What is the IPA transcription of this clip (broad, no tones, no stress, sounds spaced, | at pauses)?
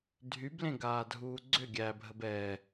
dʱ y b l ẽ ɡ aː dʱ uː ɡ͡ǀ ʏ ɡʲ æ bʱ ə b ɛ